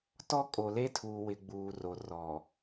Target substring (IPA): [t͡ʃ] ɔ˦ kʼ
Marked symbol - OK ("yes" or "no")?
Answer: no